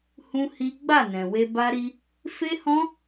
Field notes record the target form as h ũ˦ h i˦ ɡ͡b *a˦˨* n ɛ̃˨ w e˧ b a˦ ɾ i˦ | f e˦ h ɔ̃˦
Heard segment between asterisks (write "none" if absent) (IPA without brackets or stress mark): a˦˨